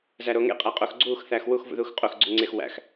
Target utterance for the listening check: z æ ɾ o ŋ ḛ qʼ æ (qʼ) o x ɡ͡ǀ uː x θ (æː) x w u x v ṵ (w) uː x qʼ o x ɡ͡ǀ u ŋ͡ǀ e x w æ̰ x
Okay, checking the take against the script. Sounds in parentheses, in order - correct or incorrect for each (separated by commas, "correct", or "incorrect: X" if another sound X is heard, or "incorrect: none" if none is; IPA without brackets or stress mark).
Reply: correct, correct, incorrect: ð